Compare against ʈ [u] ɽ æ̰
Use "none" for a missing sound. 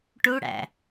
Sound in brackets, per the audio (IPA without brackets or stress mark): u